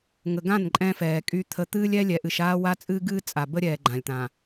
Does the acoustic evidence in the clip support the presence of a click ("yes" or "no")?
yes